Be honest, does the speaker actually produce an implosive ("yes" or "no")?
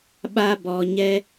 yes